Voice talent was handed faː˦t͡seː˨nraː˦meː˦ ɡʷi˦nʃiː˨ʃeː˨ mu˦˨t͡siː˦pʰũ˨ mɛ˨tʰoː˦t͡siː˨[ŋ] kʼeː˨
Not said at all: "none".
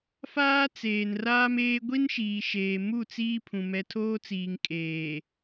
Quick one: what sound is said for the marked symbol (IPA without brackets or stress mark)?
ŋ